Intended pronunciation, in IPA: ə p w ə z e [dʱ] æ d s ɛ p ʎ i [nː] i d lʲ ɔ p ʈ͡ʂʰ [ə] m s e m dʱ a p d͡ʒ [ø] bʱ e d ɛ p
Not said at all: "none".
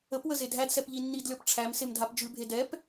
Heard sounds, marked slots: dʱ, nː, æ, ʉ

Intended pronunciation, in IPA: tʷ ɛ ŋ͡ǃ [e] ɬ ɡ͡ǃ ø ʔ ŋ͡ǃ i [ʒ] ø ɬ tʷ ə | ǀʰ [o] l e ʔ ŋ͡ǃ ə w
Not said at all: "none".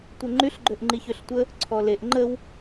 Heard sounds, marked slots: y, ç, ɔ

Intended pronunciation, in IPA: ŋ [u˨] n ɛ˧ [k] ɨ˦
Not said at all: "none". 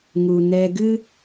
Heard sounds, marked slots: u˨, ɡ

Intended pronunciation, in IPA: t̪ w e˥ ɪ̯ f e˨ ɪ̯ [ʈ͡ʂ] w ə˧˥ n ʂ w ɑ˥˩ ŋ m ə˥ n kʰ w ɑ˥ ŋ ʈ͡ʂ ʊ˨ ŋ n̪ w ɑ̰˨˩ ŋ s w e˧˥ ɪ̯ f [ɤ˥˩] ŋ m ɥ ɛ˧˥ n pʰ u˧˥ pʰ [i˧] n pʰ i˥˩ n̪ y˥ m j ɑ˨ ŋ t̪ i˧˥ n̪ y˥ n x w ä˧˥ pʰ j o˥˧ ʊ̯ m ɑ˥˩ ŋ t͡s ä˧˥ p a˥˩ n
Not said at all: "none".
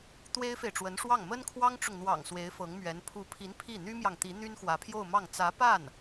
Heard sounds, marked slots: ʈ͡ʂ, ɤ˧˥, i˧˥

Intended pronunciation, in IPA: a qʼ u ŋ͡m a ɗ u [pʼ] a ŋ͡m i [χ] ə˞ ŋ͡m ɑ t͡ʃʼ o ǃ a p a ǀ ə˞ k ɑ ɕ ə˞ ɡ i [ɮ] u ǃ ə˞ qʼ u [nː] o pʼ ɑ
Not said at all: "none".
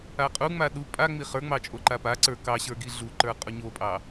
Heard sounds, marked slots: pʼ, χ, ɮ, ɲ

